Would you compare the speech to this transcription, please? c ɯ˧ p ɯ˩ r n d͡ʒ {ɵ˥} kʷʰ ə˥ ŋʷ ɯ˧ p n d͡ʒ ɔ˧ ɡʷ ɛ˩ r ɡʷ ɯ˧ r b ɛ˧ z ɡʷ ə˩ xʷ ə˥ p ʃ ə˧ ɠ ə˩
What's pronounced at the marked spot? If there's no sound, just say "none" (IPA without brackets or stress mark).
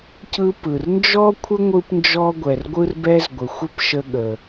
ɔ˥